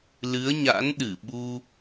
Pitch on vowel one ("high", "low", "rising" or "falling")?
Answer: rising